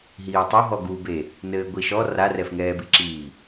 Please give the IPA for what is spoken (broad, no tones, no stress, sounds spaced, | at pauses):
ɦ iː tˤ o ɦ ɔ ɡ u b e | n ɘː ɡʷ i ʃ ɔ r a r ɛ f ŋ ɛː b i ǁ iː